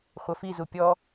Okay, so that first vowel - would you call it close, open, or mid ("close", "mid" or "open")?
open